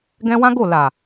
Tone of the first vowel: high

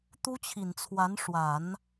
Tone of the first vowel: high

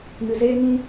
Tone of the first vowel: low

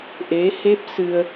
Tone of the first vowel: rising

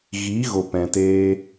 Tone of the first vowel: rising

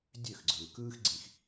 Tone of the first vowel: falling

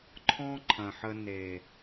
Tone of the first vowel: high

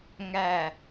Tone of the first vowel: falling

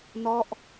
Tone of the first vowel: falling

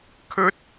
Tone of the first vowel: high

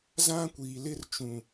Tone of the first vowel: high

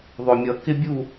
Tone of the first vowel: low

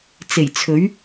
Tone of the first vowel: low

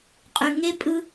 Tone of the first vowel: low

